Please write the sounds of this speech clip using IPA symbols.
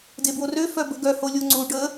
d e b w o r ø f œ b ə̤ ɡ œ h o lʲ o ŋ͡ǀ u ɖ ə

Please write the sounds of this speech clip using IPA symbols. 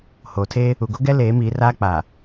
h oː˨ tʰ eː˦ | u˨ ɡ o˦ ɡ ɛ˦ l eː˨˦ m iː˨˦ r aː˦ k͡p aː˨

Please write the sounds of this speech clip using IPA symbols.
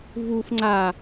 v u f ŋ͡ǀ a

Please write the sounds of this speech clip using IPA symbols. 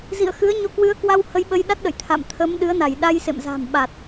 z ḭ˧˨ ə̯ x ɨ˨˦ ə̯ ɲ o˧ k w ɨ˨˦ ə̯ k w a˧ w h ə˧ j ɓ ə˧ j ɗ a˦˥ t̚ ɗ ə̰˧˨ j t̪ʰ a̰˧˨ m t̪ʰ ə˨˦ m ɗ ɨ˨˦ ə̯ n a˧˩ j ɗ a˧ j s ḛ˧˨ m z a̤˨˩ m ɓ a˨˩ t̚

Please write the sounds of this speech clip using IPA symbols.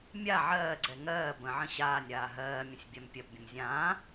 mʲ a ʕ ɜː ɡ͡ǀ ɛ ŋ ɜː b ə̃ ʕ ə̃ ɕ aː nʲ ɾ aː ɦ ɜː mʲ ə̃ sʲ bʲ a m pʲ ɜ p bʲ ə̃ m zʲ ãː

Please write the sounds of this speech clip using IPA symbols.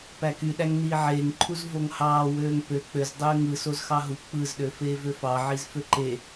p æ k y ɗ æ ŋ n iː ʕ eː ŋ ǃʰ u z v o ŋ h ɑː w øː ŋ p ø k͡p ø z dˤ øː ŋ ɯ s o z x ɑ ɦ u k͡p ɯ z ɗ ø f eː v ø f ɑ ʕ i z f ø ǃ e

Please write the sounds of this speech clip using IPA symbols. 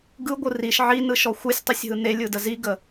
ɡ ɯ ɡʷ ɯ r i ʃ ʕ i n ɯ ʃ ɔ xʷ ɯ sʲ tˤ ɯ sʲ ɦ ɯ n e lʲ ɯ d ə z i ɡ ə

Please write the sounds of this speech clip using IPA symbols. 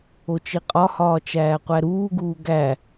o t͡ʃ i qʼ ɒ h ɒː t͡ʃ æː qʷ æ ɾ uː ɡ uː ɡ æ

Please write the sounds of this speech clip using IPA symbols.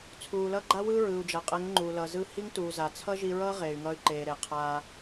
t͡sʰ uː˨ l ʌ˦ ɡ͡ǃ a˦ w ɯː˦ ɹ ɯː˨ u̯ d͡ʒ a˨ qʼ ɛ˨˦ ŋ ŋ͡ǃ uː˨ l ʌː˨ z ɯː˧ h i˦ ŋ t uː˨ z a˨ t͡sʰ ʌ˦ ʒ i˧ ɹ ʌː˦ ʁ eː˨ y̯ ŋ ʌː˧ y̯ ǃ eː˨ ɾ e˨ qʰ aː˧

